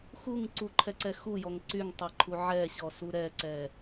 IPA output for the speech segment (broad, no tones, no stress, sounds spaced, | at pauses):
x u ŋ ǀ u ǃʰ ɛ ǀ ɛ x u j ɔ ŋ ǀ y ŋ tˤ ɛ ǃʰ u ʕ ɛ ɕ ɔ s u ɾ ɛ ǀ ɛ